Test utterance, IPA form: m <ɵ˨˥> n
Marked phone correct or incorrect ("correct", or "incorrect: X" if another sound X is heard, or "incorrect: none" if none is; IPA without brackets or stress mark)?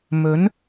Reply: correct